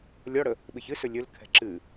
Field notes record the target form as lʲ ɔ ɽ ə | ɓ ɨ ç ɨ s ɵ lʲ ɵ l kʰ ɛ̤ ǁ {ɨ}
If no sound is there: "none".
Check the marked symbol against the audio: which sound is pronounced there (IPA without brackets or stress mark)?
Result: ɨ